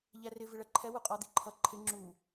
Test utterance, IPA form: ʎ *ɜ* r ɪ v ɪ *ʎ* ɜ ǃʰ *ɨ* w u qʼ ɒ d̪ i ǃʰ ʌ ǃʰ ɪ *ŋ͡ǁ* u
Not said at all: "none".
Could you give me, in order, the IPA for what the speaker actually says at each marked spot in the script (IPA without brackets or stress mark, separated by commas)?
æ, ɭ, ɛ, ŋ͡ǁ